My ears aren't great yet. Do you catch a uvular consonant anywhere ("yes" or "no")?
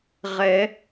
yes